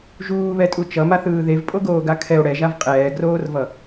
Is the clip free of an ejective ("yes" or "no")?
no